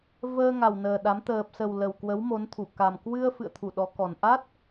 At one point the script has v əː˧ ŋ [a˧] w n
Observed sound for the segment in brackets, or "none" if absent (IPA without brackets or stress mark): a˨˩